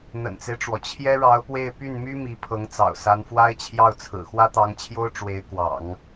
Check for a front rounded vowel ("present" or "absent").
present